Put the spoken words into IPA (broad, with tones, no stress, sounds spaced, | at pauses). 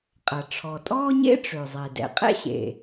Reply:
qʼ ɐ˩ ʈ͡ʂʰ ɔ˩ tʼ ɔː˥ ɲ ḛ˥ ʈ͡ʂ ø˩ zˤ e˩ d ɛ̰˩ qʼ ɛ̰˥ ɕ ḛ˩